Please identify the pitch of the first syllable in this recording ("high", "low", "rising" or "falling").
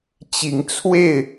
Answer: rising